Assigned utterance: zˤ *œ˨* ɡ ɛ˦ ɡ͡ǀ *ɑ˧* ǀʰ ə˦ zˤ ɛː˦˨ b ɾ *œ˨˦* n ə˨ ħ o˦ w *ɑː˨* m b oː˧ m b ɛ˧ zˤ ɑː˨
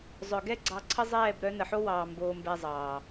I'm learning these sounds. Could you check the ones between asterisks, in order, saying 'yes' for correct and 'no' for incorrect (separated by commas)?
yes, yes, yes, yes